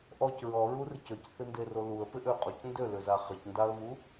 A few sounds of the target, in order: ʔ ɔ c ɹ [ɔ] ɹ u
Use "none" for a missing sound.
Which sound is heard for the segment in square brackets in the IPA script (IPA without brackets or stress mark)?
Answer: ɔ